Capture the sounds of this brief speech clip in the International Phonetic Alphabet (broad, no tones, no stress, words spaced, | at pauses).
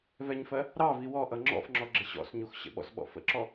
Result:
vɛɲfɜ | ɾɑvi wɔ ʔʌŋ͡ǁɔ̰fŋ͡ǁɔ ɡ͡ǁɪɕɔ̰sɲux ɕə̰ɓɔ̰sɓɔ̰ fə̰ǁɔ